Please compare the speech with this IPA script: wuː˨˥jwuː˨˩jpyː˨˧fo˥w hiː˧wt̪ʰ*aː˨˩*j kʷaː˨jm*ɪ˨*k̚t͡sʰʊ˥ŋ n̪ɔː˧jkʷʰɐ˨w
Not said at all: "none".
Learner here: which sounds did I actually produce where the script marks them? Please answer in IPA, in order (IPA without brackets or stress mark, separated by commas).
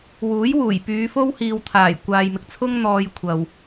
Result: aː˨˩, ɪ˨